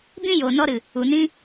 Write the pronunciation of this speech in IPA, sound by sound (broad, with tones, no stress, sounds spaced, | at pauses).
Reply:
b ĩ˦ j oː˨ n ɔ˧ ɾ ɨ˨ | u˨ n ĩ˦